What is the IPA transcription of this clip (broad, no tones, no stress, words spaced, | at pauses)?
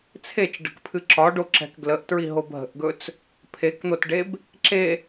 t͡sʰet͡ʃɖə̤kpʰɨ ǁɒɖoǁɛ̤k ɡləʔtɹiɦob ɦə̤ʔɡɵt͡s | pʰekn̪otɖeb | ǁe